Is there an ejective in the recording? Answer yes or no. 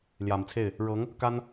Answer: no